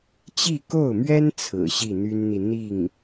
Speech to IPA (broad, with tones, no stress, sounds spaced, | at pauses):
t͡ɕ i˥˧ k o˥˩ ʊ̯ m ɥ ɛ˥ n t͡sʰ ɹ̩˨˩ ɕ i˥˩ n̪ y˥ n n̪ i˨ n̪ i˥˩ ŋ